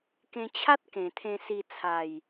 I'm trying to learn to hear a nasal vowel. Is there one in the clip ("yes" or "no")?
yes